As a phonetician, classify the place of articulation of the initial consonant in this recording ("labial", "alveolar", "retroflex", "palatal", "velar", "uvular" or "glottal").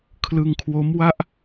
velar